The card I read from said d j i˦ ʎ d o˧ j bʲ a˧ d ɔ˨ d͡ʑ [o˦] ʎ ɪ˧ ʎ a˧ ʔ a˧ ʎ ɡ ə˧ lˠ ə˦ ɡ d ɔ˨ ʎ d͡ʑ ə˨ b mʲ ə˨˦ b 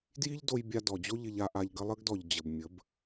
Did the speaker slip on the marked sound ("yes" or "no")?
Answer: no